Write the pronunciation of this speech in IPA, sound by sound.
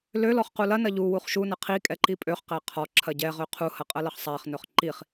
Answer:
l ø l ɔ χ q u l ɐ n ɐ ʎ u w u χ ʃ u n ɐ qʰ i kʼ ɛ ǃ i pʼ ø χ q æ qʰ ɔ ǁʰ ɐ ɟ ɛ ʁ ø qʰ u h ɐ qʼ ɐ l ɐ χ sˤ æ χ n ɵ χ ǃ i χ

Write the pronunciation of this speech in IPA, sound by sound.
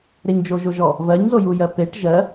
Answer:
ɾ e ɲ d͡ʒ o ʒ o ʒ ɔ | v ɜ ɲ z o j u j ɜ p e ʈ ʒ ɜ

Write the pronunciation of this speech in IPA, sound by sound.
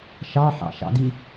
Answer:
ʃ ɑ ħ ɑ̰ ʃ ɑ̰ d i

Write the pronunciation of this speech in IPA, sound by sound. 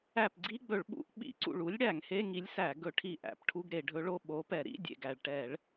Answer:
æ˧˩ p ɡ͡ǀ i˧˥˧ ɡ͡b ɵ˧˩˧ ɭ ɓ ṵ˧˥ ʔ ɓ ḭ˧˩˧ ǀ ṵ˧˩ ɭ u˧˥ lʲ ɽ æ˧˩˧ ŋ h e˧˥˧ ŋ i˧˥ lʲ s æ˧˩˧ ɡ ɵ˧˩˧ ʈʰ i˧˩ ʔ æ̰˧˩˧ p ʈʰ u˧˥˧ ɡ ɾ e˧˩˧ ɖʱ ɵ˧˥ ɭ o˧˥˧ ɓ o˧˥ p ɛ˧˩˧ ɾ ḭ˧˥˧ dʲ ḛ˧˩ ɡ æ˧˩ ɭ ʈ ɛ˧˩˧ ɭ

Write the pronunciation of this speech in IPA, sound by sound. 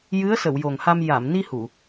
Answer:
j ɨ˧˥ ə̯ s ə˨˩˨ w j o˨˩ ŋ h a˧ m j a˨˩˨ m n i˧ h u˨˩˨

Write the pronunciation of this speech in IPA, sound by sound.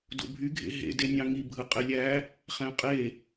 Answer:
d o̰ bʱ y ɡʱ ḛ ɦ ḛ d e nʲ ɑ̃ ŋ i bʱ ɯ qʼ e lʲ æ | χ æ̃ qʼ e

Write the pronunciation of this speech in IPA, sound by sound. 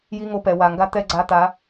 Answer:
j i˦ ŋ o˧ p ɛ˨ w a˨ ŋ ɡ a˦ t̪ ɛ˦ ɡ͡ǀ a˧ t̪ a˨˦

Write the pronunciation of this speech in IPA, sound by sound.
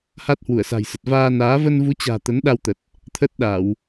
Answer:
h a˦˥ t̚ h w u˧˩ ə̯ s a̤˨˩ j s ə˨˩ t̚ v aː˧ n aː˨˦ v ə˧ n v u˨˦ t͡ɕ a̤ː˨˩ t̪ ə˨˦ n ɗ a˧ w t̪ ə˨˩ t̚ | t̪ʰ ə˦˥ t̚ ɗ a˧˩˨ w

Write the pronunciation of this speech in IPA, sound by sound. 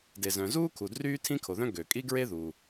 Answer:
d e˩ z œ̃˩ z uː˥ kʰ u˩ d r yː˥ tʰ ĩ˥ kʰ o˩ ð œ̃˥ ɡ ø˩ kʼ i˥ ɡ ɹ e˥ ð uː˩

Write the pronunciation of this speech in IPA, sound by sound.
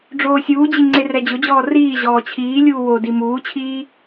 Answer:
ɖ͡ʐ oː sʲ uː d͡ʑ i ŋ͡ǀ e r ɛ d͡ʑ ʊ d͡ʑ ɔː r iː ʑ ɔː t͡ɕʰ iː lʲ uː w o d i m uː t͡ɕʰ iː

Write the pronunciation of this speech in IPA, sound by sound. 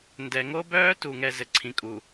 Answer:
n d ɛ˨ ŋ o˦ b œː˦ t u˨ ŋ ɛ˨ z ɘ˨ ǀʰ ĩ˨ kʼ u˨

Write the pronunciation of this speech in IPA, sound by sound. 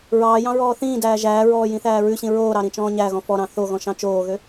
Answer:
ɹ ɑː j ɑ̃ ɹ ɔː θ ĩː d æː ʒ æː ɹ ɔː j ĩ θ æː ɹ ʉ ɕ ĩ ɹ oː ɾ ɑ ɾ ĩ t͡ʃ ɔ̃ː ɲ æ ɣ ɔ̃ f ɔ ɾ ɑ̃ θ o ɣ ɔ̃ ʃ ɑ̃ t͡ʃ oː ɣ ø

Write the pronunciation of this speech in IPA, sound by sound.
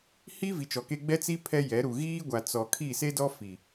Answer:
h i˦ v i˨˦ t͡ʃ ɔ˨ k e˦ ɡ͡b ɛ˦ t͡s i˦ pʰ ɛ˦ j ɛ˨˦ ɾ u˨ ɣ iː˦ ɡʷ a˨ t͡s ɔ˨ kʰ i˦˨ s e˦ d ɔ˦ f i˨

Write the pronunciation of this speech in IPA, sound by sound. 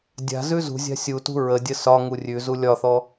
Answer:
dʲ a̤ z ʉ z ṳ zʲ a̤ sʲ u t ṳ ɹ ə dʲ ə s ɒ ŋ u rʲ ʉ z u lʲ ɒ θ ɔ

